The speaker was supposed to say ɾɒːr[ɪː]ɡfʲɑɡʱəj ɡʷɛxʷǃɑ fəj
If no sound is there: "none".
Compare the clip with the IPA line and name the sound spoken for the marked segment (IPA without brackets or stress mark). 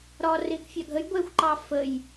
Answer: ɪː